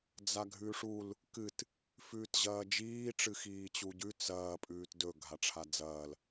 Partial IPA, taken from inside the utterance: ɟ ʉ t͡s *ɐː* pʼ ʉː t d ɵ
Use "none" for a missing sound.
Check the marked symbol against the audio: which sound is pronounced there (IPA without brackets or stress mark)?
ɐː